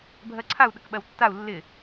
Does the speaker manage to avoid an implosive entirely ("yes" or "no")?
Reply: no